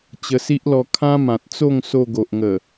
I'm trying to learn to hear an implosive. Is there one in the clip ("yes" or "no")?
no